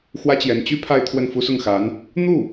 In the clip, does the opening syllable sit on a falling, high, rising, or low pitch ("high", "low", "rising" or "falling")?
high